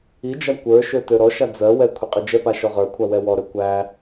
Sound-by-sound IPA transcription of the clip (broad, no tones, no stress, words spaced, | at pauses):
id͡ʒa kʷə˞ʃø tøɾɔʃa d͡zɜwɛ kʷʰiqʼid͡ʒɛpa ʃɔʁə˞kʷʰa wɛwɔɾø kʷæ